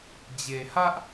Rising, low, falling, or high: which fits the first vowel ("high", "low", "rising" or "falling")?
low